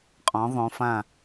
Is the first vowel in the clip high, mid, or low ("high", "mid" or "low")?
mid